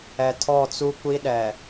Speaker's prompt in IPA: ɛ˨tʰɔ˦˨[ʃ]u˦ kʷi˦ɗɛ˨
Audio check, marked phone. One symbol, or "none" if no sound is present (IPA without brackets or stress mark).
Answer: t͡s